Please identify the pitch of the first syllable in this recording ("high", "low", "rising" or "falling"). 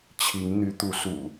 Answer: rising